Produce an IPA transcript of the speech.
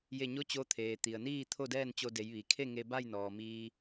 j e˧˩ ɲ o˧˥ t͡ɕ o˧˥ t̪ʰ eː˩ t̪ i˩ ə̯ n iː˥˨ t̪ʰ o˥˨ d ɛː˥˨ n t͡ɕ o˧ d e˩˧ j ʋ i˩ kʰ e˥˨ ŋ e˧ b a˥˨ j n ɔː˩ m iː˧

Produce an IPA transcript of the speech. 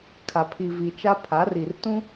kʰ a˨ pʰ i˨ v i˨ t͡ʃ a˦ pʰ a˨˦ r i˨ r t ũ˦

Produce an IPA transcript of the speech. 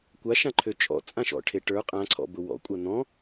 kʷ a ʃ ã ǃʰ ø t͡ʃʼ ɔ̰ t͡sʼ ã ʃ ɔ̰ ʈʰ e ʈ ə˞ qʼ ã ǀʰ ɔ̰ b ʊ w ɔ̰ kʷʼ a n̪ ɔ̃

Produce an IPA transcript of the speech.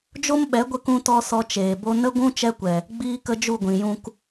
d͡ʒ o˦ m ɓ ɛ˨˦ ɡʷ ə˧ k ũ˦ t ɔ˦ s ɔ˧ t͡ʃ eː˨ b o˦ n ə˦ ɡʷ ũ˦ t͡ʃ ɛ˦ kʷ ɛ˨ | ɡ͡b iː˦ k ə˦ d͡ʒ u˦˨ ɡʷ ĩ˨ j ũ˧ k

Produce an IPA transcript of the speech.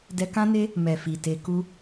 d ɛ˧ k ã˦ n e˦ | m ɛ˨ f i˨ t e˧ k u˦

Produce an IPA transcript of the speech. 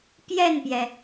p j ɛ˥˩ n p j ɛ˩

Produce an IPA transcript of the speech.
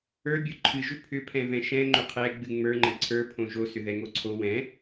ə˞ bʲ o ǃʰ ɨ ʒ ʏ pʰ ʏ pʰ ɛ̃ v ɛ̃ ʃ ɛ̃ ŋ͡ǃ ʏ qʰ ɛ ɡ͡b ɨ ŋ͡m ə˞ ŋ͡ǃ ə̃ ǀʰ ə˞ pʰ õ ʒ o s ʏ ð ɛ ŋ o ǀʰ o w ɛ̃

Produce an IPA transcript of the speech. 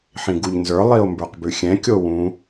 ħ ĩ ɡ u ʎ n z ə˞ lˠ i o̯ m b ə˞ q b ʉ xʲ ɛ̃ kʲ o w ũ

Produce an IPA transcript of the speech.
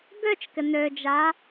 ɡ ø t͡ʃ k ɪ n ø d͡ʒ a

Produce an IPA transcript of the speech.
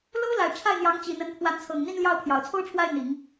l o˥ ʊ̯ l a˨˩ ɪ̯ ʈ͡ʂʰ a˥˩ ɪ̯ n̪ j ɑ˧˥ ŋ t͡ɕ i˨˩ n̪ ə˧˥ n pʰ w a˧˥ n t͡sʰ ɤ˨˩ ŋ n̪ i˥˧ n l j ɑ˥˩ ʊ̯ pʰ j ɑ˨˩ ʊ̯ t͡sʰ o˥ ʊ̯ ʈ͡ʂʰ w a˥˩ ɪ̯ n̪ i˨˩˦ ŋ

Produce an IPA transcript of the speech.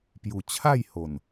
p j u˨˩ t͡ɕʰ a˥˧ j h o˨˩ n

